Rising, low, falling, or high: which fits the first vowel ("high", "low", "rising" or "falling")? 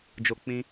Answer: high